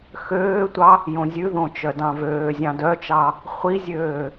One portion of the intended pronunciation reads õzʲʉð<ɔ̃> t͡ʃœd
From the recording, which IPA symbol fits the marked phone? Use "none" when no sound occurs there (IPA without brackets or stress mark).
õ